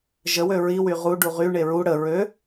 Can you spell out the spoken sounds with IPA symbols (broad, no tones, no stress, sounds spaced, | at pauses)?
ʒ ə w ø ɹ i w y ʁ u ɖ u ʁ y ɳ e ɹ u ɽ ə ɹ ø